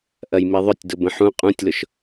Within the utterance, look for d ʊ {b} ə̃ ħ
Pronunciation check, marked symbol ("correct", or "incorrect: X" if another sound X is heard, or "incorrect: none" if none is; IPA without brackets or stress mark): correct